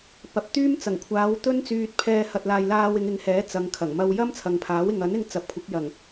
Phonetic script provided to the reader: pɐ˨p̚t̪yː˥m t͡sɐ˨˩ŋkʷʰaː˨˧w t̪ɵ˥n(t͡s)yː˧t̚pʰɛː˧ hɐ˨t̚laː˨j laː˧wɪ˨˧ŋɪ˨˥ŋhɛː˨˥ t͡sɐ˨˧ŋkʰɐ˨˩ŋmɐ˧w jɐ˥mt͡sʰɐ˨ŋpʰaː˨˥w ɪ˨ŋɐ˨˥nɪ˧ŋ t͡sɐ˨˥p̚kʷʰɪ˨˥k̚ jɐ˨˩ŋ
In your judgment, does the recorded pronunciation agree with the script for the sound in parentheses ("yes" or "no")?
yes